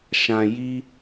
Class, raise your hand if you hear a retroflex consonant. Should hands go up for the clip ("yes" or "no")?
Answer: no